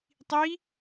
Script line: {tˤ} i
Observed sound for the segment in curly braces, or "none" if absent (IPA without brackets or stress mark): tˤ